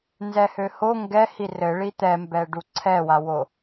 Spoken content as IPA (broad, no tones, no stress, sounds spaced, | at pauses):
n z ɛ h ø h o ŋ ɡ ɛ h i r ɘ ɭ i t̪ ɛ m b ɛ ɖ u ǀʰ ɛ w a w o